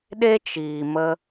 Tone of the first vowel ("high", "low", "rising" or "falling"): high